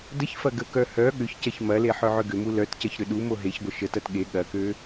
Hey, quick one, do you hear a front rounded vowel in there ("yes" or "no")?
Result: yes